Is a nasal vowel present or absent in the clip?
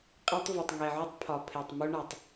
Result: absent